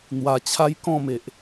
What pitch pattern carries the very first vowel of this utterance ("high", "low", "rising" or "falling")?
low